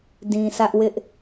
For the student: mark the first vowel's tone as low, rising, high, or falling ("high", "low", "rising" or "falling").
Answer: low